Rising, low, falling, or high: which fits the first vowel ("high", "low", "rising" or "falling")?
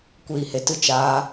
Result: low